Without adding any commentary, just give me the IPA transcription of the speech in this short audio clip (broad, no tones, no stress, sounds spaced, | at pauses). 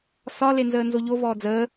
s ɒ l e n z əː n z o ʎ o v ɔː d͡z əː